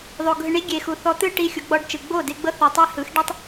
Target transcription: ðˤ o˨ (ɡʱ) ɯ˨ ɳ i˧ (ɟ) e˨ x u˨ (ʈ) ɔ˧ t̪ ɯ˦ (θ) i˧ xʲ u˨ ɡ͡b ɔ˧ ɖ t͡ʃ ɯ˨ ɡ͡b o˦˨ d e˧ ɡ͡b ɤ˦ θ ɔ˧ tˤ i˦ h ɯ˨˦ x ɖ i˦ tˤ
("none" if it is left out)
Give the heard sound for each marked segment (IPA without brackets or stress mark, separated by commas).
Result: ɡʱ, ɡʲ, θ, ʈ